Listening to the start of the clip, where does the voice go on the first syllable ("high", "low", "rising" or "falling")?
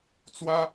high